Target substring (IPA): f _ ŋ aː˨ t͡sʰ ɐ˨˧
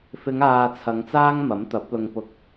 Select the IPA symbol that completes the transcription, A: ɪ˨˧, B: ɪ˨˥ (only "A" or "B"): A